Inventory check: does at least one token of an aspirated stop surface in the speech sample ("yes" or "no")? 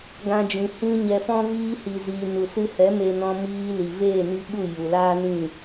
no